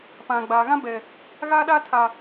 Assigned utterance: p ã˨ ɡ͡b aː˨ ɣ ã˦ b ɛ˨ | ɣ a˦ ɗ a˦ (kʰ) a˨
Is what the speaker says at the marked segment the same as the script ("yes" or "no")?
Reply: no